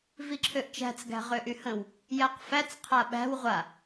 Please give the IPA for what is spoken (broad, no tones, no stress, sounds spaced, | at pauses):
v i ǁʰ ø ʔ t͡ʃ æ̤ t͡s ɡ æ̤ ʁ ʏ ʔ y h ə̃ w | j æ q f æ t͡s qʰ a ɓ æ̤ w ʁʷ a